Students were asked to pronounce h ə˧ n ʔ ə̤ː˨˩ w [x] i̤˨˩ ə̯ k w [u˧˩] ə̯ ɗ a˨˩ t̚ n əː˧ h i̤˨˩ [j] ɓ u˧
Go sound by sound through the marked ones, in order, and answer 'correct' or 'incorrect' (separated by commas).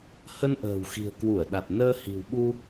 correct, correct, incorrect